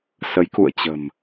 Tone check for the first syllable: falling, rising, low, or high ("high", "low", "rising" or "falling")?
rising